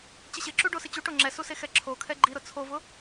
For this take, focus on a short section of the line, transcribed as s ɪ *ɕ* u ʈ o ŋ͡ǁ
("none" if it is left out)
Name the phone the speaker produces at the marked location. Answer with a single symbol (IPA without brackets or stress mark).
t͡ɕ